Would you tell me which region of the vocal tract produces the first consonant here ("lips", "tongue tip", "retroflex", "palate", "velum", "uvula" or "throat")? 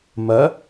lips